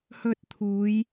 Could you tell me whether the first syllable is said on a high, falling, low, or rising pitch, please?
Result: high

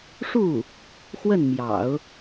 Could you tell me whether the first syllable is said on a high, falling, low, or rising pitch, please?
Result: falling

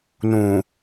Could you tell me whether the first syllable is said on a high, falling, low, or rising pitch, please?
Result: low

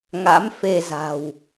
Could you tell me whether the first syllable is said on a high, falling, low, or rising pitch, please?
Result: rising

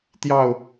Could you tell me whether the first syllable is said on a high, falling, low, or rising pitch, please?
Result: falling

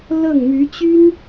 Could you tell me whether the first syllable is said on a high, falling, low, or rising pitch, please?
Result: falling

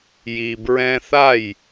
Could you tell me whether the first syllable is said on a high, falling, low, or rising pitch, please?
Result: low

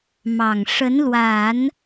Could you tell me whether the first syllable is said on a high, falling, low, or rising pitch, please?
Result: low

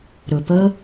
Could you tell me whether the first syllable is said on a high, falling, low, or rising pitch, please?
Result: low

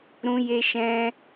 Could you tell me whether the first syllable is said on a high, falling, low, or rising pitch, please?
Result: high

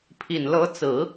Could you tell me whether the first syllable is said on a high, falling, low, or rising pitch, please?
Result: low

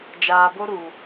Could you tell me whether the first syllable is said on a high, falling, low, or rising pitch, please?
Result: low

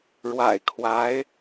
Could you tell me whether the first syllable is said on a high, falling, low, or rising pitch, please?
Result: low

